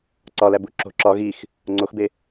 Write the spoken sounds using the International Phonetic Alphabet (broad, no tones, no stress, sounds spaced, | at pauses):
ǀ ɒ l æ b u ǁ o̤ ǁ ɒ ɣ i x | ŋ͡ǀ o x b e